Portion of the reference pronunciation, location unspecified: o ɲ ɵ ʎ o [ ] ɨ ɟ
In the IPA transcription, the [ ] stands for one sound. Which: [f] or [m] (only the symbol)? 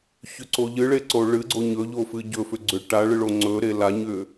f